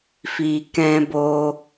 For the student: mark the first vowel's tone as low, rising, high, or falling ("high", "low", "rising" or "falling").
low